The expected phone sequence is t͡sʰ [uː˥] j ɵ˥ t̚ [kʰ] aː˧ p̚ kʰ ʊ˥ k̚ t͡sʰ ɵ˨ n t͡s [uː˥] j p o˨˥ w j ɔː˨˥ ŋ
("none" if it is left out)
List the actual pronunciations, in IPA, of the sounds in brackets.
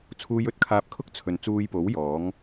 uː˥, kʰ, uː˧

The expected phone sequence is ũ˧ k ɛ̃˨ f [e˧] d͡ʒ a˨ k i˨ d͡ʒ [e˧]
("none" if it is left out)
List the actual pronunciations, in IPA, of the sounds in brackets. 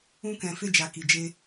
e˧, e˧

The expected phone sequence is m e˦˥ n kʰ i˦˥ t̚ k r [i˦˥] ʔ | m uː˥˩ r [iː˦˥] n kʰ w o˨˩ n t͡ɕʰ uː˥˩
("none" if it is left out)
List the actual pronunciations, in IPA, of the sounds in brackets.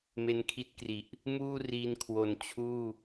i˨˩, iː˧

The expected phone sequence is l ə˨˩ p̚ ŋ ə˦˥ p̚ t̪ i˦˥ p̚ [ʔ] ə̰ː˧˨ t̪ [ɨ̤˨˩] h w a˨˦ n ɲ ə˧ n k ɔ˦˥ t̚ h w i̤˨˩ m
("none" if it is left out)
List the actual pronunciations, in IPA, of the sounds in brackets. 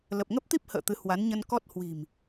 h, ɨ˨˦

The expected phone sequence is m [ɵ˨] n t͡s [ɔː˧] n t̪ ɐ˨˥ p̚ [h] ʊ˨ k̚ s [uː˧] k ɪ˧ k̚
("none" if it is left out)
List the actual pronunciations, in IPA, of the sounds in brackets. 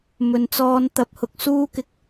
ɵ˨, ɔː˧, h, uː˥

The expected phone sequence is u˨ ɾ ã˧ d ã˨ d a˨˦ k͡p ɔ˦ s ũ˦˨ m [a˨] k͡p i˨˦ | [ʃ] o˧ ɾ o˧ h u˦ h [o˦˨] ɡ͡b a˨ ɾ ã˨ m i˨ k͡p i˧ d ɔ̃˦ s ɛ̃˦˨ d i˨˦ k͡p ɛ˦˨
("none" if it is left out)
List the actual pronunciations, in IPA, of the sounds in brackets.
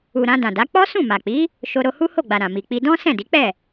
a˨, ʃ, o˦˨

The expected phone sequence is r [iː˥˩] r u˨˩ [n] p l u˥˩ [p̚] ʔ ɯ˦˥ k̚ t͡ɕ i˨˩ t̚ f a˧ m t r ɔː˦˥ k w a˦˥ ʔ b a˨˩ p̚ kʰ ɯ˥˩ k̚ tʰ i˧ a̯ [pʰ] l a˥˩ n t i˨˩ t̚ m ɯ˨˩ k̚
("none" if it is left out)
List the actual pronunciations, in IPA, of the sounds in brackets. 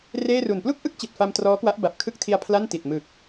eː˥˩, n, k̚, pʰ

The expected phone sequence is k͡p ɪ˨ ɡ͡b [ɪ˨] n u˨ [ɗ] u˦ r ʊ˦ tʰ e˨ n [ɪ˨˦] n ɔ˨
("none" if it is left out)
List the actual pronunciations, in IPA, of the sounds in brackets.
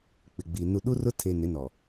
i˨, ɗ, ɪ˨˦

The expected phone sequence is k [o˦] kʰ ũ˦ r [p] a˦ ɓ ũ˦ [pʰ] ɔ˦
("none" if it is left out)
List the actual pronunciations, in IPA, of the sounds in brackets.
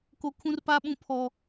o˦, p, pʰ

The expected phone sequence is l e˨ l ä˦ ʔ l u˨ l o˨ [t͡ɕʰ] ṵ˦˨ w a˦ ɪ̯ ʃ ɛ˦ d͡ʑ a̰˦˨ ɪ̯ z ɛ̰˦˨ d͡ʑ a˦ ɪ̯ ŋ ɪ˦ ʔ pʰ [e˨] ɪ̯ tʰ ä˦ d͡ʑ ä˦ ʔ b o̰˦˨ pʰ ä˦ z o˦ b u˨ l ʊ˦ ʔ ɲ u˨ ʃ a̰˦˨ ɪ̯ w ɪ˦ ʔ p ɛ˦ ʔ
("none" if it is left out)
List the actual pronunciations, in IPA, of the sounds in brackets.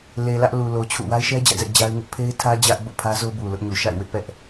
t͡ɕʰ, e˦

